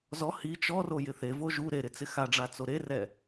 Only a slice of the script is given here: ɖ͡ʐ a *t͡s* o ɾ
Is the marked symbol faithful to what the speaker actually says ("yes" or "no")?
yes